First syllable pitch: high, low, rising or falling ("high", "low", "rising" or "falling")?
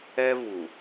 high